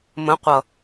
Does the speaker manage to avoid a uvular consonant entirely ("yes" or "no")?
no